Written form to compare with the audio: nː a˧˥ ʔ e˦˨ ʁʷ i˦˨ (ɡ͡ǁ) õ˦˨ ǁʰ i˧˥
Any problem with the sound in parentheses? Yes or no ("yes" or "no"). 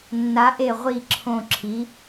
yes